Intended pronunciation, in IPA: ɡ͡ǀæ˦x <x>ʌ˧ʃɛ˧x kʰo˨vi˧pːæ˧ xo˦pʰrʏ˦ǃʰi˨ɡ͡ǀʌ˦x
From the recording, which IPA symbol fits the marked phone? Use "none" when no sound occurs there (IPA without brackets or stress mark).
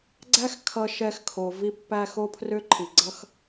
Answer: kʰ